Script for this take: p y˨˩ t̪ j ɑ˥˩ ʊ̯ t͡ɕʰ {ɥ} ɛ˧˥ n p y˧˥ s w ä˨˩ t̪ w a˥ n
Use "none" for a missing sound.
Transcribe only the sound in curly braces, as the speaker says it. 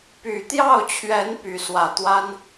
ɥ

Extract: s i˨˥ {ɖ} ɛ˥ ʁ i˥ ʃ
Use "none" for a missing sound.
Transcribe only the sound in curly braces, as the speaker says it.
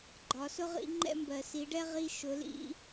ɖ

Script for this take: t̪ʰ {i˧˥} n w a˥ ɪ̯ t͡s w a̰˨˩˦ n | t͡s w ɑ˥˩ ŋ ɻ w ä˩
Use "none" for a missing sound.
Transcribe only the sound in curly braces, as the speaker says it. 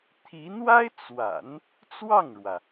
i˧˥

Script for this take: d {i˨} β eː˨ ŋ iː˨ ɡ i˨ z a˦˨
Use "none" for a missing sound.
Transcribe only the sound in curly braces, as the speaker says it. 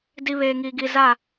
i˦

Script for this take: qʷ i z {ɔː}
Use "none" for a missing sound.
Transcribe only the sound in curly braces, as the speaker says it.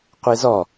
ɔ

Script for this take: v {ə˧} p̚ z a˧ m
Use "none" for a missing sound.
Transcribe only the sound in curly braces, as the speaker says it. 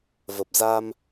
ə˨˩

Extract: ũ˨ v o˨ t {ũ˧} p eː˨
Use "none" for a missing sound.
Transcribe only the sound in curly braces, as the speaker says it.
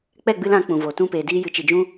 ũ˧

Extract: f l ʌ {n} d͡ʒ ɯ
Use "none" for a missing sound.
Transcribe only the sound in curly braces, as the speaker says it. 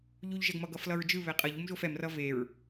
ɹ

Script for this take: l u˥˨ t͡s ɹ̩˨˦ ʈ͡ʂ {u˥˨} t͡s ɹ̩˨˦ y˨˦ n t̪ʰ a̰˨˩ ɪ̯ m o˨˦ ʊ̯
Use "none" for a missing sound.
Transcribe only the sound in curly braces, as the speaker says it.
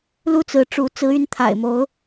u˨˦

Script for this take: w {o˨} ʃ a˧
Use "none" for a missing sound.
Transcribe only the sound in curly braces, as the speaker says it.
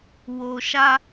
o˨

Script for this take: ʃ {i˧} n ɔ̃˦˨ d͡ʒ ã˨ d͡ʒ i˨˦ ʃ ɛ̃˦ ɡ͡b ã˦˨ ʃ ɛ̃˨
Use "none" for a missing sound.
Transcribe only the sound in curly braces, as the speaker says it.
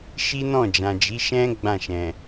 i˦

